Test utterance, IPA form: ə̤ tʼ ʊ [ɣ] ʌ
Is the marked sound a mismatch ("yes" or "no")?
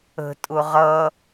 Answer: yes